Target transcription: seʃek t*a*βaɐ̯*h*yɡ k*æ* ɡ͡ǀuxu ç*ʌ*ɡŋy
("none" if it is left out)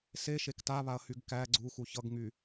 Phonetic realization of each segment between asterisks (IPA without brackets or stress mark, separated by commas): a, h, æ, ʌ